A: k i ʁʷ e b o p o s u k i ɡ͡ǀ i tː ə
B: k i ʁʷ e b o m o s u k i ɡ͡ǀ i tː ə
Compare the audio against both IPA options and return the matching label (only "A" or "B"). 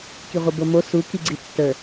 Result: B